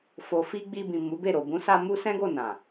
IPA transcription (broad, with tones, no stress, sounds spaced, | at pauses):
f o˨ f i˧ ɡ͡b i˧ b ĩ˨ m u˨˦ b e˦˨ ɾ o˨ b ũ˨˦ s a˧ m u˦ s ɛ̃˦ ɡ o˦˨ n ã˨